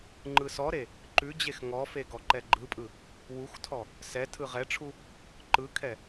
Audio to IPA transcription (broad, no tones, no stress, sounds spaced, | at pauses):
ŋ͡ǃ ɯ s ɔ ɾ e | ǃ ʉ d͡ʑ e x ŋ ɔ f e ɡ ɔ ǃ ɛ ɡ͡ǃ ɯ pʼ ɯ | w u x tʰ ɔ | s ɛ tʰ ɯ ʁ ɛ ʈ͡ʂʰ u | ǃ ɯ kʰ ɛ